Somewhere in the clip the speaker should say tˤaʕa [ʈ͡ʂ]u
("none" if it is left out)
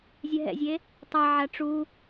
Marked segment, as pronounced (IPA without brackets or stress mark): ʈ͡ʂ